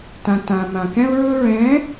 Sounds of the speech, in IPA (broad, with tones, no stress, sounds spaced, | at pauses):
t ã˨ t ã˨ m ã˨ k ɛ̃˦ ʊ̯ ɹ ɵ˦ ɹ ɛ̃˨˦